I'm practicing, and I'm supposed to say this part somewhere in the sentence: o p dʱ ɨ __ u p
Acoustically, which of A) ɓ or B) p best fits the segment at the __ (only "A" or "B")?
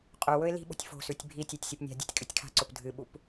A